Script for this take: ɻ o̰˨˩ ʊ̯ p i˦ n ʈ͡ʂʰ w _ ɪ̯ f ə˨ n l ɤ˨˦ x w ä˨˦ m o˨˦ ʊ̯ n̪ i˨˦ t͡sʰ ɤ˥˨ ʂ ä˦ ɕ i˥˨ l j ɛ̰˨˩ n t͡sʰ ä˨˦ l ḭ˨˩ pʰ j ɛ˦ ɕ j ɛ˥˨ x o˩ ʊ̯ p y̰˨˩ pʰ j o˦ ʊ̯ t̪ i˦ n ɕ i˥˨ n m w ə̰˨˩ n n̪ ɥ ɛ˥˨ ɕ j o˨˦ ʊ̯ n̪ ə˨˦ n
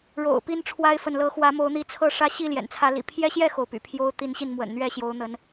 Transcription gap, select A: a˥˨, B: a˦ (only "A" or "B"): B